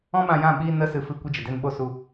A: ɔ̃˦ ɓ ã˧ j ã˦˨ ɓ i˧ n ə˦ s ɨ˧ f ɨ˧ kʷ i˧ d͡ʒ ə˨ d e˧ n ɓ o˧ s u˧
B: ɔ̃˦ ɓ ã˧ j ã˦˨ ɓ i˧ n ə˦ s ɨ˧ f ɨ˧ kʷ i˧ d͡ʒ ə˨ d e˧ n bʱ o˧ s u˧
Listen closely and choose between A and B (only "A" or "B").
A